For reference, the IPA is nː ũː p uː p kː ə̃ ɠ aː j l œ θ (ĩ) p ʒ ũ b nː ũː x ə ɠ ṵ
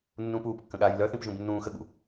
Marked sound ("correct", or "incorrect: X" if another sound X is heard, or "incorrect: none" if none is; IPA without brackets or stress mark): correct